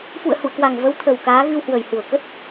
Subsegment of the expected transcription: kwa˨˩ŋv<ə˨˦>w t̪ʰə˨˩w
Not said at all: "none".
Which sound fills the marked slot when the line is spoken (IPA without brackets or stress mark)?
ə˨˦